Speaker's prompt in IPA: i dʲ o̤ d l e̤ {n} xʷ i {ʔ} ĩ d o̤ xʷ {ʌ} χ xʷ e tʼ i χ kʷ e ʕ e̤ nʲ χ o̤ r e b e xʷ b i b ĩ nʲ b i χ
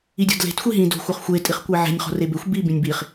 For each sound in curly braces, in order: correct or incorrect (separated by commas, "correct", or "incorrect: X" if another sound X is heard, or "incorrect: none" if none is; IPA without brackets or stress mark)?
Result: incorrect: t, incorrect: ɦ, correct